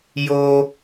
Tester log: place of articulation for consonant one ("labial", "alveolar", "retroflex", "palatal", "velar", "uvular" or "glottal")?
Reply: palatal